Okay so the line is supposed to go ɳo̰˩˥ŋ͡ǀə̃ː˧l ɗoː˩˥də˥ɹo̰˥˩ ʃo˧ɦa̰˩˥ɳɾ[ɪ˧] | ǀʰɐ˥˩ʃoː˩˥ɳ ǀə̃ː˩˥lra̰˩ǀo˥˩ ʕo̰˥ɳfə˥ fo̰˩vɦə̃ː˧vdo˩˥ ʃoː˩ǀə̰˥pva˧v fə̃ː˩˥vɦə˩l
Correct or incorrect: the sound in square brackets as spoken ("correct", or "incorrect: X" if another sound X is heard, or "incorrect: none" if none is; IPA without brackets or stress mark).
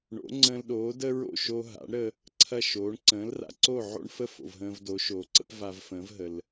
incorrect: ə˧